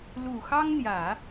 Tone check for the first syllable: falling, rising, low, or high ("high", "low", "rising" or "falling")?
low